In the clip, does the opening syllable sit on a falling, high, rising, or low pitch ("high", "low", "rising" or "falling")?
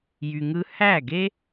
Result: low